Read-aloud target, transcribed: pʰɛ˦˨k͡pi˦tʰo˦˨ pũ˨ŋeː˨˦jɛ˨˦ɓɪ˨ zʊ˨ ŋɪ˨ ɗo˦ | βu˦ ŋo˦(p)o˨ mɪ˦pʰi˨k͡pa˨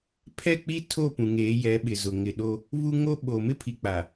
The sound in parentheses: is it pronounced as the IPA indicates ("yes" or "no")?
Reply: no